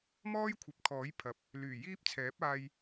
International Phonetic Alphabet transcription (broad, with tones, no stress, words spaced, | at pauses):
mɔː˥jkʷʰɐ˨˥p̚kʰɔː˨˥j pʰɐ˨˥p̚ | lyː˨˩ jiː˥p̚t͡sʰɛː˨˥p̚ aː˧j